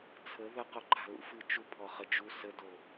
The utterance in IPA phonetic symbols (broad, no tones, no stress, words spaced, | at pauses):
t͡sʰə ðəqoǃʰa̤ lṵfɨ t͡ʃupʰɔχə d͡ʒu sədo